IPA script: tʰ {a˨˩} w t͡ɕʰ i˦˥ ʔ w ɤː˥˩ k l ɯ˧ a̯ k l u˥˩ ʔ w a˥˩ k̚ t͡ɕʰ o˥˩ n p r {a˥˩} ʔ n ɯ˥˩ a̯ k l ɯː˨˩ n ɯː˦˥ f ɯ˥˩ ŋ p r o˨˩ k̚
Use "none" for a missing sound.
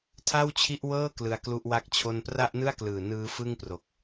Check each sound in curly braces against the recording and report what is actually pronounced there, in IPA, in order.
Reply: a˥˩, a˥˩

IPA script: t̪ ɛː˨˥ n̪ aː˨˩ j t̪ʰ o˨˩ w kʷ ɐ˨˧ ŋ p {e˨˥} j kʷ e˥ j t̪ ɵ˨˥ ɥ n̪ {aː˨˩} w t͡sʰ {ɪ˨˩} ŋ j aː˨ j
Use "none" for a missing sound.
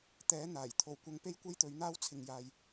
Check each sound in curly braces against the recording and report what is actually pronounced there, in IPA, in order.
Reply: e˥, aː˥, ɪ˨

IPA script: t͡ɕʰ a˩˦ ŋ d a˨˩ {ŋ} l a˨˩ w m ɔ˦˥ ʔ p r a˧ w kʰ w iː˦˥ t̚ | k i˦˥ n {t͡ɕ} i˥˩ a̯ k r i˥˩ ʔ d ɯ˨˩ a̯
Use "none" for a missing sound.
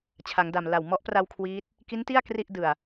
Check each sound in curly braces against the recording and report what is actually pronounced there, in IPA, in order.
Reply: m, t

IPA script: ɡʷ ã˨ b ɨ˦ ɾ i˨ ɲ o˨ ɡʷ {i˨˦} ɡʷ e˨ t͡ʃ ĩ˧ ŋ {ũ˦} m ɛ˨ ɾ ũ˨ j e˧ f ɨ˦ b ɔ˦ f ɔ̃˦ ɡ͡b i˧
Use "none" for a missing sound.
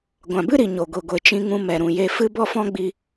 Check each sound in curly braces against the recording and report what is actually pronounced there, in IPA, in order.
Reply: i˨, ũ˧

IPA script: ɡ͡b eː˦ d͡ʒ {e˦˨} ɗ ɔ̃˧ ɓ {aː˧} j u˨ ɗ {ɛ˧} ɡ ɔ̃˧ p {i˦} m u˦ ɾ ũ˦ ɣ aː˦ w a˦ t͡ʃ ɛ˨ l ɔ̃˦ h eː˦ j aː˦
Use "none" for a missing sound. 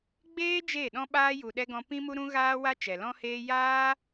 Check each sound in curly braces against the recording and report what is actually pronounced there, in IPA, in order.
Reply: e˦˨, aː˧, ɛ˧, ĩ˦

